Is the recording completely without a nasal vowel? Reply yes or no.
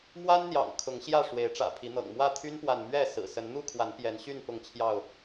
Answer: yes